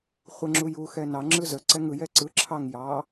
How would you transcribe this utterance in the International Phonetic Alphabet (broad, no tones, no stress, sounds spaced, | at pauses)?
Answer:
χʷ ə ŋ͡ǁ u j u x ɛ n ɑ ŋ͡ǁ ɯ z ə ǀ ɛ ŋ ɯ j ɛ ǀ ɯ ǁʰ ɑ ŋ j ɑ